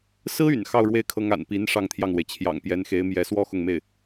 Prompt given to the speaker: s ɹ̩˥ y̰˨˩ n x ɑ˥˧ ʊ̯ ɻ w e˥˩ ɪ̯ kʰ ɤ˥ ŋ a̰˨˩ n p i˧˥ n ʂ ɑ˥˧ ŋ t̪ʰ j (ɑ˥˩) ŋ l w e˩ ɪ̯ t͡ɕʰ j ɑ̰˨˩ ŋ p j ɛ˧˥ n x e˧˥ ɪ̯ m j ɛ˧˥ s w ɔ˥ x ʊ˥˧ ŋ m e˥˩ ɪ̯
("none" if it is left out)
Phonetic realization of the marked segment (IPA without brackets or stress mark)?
ɑ˥˩